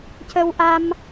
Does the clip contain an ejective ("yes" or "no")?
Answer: no